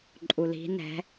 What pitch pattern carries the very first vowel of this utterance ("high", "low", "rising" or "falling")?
low